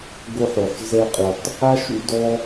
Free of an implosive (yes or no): yes